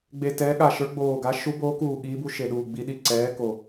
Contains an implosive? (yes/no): yes